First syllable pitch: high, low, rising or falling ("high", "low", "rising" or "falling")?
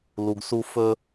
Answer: low